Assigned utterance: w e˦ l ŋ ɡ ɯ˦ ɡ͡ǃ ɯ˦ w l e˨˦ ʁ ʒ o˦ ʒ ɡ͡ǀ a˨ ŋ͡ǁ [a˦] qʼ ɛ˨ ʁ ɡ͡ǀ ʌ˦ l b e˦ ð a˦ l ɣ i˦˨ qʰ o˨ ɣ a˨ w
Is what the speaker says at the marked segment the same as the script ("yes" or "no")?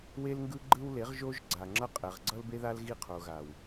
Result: no